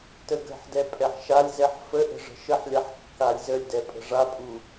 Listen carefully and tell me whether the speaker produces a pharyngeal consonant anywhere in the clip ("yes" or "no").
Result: yes